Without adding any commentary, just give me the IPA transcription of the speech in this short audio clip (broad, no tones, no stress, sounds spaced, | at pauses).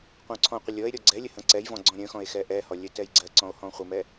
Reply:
qʷ ə̃ o̯ ǀʰ ɔ̃ qʷ ə lʲ ɔ e̯ ɾʲ ɔ ɡ͡ǀ ɛ lʲ ə h ə̃ ǀ ɛ j v ɔ̃ ɡ͡ǀ ɔ̃ ɾʲ ə̃ x ɔ̃ e̯ x ɛ ʔ ɛ h ɔ lʲ ə t ɛ j ɡ͡ǀ ɜ ǀ ɔ̃ o̯ h ɔ̃ χʷ ə m ɛ